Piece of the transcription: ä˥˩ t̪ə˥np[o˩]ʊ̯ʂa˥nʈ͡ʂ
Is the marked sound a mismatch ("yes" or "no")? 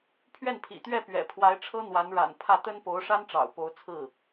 yes